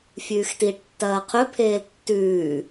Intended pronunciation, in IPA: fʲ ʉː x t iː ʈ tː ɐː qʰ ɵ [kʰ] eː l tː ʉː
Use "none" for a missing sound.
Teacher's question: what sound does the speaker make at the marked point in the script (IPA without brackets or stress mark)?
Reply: pʰ